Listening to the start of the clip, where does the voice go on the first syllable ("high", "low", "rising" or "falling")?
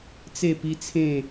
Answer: falling